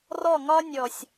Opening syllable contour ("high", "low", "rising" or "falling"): falling